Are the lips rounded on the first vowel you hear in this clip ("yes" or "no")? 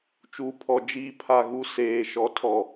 yes